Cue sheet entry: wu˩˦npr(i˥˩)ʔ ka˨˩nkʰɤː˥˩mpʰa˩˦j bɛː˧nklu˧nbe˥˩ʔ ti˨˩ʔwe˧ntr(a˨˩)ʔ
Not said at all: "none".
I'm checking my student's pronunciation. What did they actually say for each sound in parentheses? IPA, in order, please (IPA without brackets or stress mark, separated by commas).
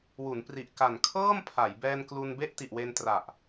i˨˩, a˨˩